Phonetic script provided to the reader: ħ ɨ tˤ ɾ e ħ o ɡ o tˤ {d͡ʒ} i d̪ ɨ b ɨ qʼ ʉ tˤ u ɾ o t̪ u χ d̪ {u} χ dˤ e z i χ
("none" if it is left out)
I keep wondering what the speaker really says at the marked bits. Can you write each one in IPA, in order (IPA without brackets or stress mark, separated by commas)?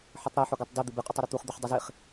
d, ʉ